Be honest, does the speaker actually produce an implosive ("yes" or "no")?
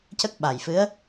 yes